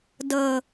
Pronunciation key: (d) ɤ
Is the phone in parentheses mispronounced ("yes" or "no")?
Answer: no